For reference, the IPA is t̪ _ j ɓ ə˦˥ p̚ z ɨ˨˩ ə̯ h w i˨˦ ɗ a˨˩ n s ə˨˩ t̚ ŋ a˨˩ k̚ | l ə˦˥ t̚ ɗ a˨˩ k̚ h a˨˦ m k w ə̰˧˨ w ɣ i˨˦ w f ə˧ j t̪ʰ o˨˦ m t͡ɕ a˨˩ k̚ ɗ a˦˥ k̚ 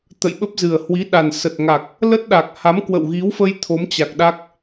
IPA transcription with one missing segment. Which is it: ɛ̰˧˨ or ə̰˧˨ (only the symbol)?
ə̰˧˨